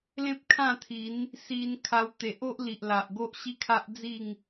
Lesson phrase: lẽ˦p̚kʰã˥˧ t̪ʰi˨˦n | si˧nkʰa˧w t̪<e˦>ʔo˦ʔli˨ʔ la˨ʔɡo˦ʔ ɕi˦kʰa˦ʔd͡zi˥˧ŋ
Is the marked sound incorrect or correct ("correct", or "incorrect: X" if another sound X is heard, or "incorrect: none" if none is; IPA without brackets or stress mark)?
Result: incorrect: e˨